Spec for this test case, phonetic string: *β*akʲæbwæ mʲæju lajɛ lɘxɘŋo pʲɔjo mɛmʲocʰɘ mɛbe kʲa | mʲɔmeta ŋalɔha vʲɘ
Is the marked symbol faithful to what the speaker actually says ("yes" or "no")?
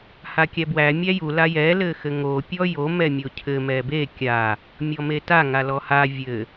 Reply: no